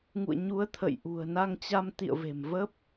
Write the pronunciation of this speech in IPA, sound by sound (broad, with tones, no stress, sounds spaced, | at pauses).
ŋ ṵ˧˨ ə̯ ɲ u˨˦ ə̯ t̪ʰ ə̰˧˨ j ʔ ṳ˨˩ ə̯ n a˧ ŋ t͡ɕ a˧ m t̪ ḭ˧˨ ə̯ v e̤˨˩ m v ə˦˥ p̚